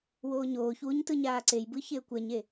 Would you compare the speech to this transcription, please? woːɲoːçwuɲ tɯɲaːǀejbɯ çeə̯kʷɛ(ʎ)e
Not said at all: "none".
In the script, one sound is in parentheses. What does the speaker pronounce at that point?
ɲ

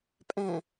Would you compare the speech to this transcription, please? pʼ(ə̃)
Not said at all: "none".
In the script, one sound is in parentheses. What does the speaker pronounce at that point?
ɛ̃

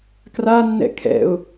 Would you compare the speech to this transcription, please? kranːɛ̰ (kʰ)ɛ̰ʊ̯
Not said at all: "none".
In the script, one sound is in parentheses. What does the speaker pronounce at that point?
kʰ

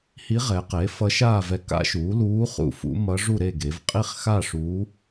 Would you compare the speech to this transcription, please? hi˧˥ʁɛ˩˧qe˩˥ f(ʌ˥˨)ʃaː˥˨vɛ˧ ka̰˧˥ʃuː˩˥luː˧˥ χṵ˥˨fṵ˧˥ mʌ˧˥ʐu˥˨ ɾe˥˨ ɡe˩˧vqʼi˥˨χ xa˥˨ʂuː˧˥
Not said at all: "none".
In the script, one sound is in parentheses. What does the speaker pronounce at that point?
ʌ˧˥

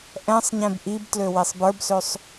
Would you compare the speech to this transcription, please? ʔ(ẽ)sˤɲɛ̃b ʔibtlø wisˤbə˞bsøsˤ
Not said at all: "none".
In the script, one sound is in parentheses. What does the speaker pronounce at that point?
ɛ̃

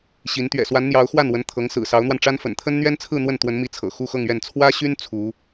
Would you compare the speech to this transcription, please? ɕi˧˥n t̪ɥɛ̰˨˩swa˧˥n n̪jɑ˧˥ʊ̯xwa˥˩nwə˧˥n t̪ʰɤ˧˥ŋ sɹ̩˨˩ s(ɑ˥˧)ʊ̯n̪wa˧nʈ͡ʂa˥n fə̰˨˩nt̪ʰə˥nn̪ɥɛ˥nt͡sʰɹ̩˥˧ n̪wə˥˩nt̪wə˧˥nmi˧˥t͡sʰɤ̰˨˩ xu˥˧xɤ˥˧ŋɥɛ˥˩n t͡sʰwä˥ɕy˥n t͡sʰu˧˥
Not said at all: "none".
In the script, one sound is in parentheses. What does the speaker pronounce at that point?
ɑ˧˥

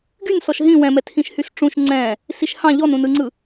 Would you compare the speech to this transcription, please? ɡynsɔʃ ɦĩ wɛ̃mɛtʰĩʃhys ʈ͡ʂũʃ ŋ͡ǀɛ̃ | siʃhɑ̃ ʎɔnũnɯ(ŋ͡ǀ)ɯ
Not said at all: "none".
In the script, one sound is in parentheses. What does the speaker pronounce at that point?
ŋ͡ǀ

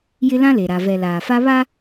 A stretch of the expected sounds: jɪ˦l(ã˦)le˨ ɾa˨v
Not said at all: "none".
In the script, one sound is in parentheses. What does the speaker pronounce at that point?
ã˦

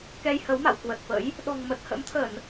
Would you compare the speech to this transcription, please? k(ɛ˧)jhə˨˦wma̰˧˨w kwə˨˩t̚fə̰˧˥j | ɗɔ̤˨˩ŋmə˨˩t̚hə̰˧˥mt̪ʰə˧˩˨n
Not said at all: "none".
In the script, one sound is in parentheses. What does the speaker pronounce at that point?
ɛ˧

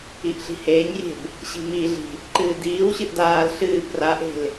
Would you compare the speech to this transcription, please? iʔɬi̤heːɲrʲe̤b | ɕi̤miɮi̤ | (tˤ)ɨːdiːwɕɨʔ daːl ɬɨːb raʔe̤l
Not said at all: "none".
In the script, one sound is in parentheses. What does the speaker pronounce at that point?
ǃ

